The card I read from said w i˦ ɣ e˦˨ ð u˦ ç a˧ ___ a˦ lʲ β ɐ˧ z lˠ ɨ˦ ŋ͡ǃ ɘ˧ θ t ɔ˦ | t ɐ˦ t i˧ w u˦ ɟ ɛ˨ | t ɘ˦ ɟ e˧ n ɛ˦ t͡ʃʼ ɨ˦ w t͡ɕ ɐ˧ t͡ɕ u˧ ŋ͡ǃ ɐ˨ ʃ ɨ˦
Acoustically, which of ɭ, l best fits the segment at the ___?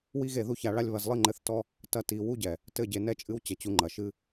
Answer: ɭ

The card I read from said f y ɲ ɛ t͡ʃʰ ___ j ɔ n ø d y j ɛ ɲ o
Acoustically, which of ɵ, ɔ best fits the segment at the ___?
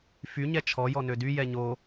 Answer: ɔ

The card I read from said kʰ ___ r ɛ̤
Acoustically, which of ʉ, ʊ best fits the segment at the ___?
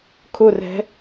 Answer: ʊ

